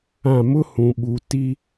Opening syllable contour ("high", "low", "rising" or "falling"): falling